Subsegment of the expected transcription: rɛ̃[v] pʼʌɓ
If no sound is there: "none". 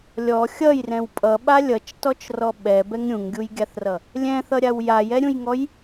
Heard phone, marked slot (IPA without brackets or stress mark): w